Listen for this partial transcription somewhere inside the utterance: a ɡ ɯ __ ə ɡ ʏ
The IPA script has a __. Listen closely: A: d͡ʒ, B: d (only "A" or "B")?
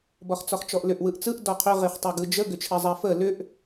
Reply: A